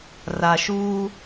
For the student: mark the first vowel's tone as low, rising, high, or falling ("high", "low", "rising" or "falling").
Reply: low